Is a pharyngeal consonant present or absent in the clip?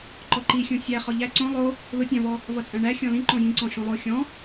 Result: absent